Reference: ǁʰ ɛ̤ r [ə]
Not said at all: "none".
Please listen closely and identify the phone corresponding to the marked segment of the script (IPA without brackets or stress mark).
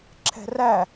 æ